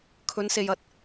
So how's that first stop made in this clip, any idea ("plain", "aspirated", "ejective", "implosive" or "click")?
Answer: aspirated